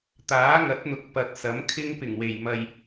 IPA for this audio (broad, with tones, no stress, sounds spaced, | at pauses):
t̪ aː˨˥ ŋ ɐ˨˥ t̚ n̪ ʊ˨˥ k̚ p ɐ˨ t̚ s ɐ˨˥ m kʰ ɪ˥ ŋ p ɪ˨˩ ŋ w e˨˩ j m ɐ˨ j